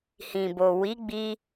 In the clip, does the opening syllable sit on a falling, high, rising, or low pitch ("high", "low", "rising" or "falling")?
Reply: low